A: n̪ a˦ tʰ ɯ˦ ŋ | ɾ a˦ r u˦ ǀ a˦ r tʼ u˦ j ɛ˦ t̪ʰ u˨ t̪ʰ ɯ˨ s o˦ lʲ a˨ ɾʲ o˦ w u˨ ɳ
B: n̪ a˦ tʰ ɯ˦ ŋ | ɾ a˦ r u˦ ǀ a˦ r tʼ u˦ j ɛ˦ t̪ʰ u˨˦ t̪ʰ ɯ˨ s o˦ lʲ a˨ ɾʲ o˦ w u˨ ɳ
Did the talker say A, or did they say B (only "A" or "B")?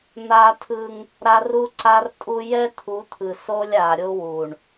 B